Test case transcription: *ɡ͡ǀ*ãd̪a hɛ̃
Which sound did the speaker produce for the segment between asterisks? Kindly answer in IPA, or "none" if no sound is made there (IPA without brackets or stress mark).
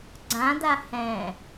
ɡ͡ǀ